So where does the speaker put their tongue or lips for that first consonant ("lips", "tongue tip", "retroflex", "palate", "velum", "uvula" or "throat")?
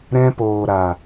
tongue tip